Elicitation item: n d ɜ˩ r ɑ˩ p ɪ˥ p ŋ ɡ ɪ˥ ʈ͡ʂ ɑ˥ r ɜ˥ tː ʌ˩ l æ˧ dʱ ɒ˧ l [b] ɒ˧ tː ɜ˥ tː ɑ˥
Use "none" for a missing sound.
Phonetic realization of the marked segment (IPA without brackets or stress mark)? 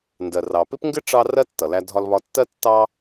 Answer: β